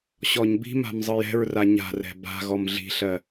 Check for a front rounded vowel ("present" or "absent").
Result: absent